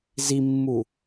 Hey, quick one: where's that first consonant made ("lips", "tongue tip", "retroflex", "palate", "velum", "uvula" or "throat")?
tongue tip